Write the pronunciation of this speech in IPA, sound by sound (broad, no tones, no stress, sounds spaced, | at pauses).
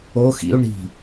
o x ḭ u̯ ɳ i̤